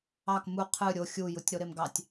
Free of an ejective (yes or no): yes